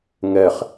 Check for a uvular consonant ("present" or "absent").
present